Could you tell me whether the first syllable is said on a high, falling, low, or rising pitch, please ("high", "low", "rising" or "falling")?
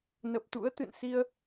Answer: low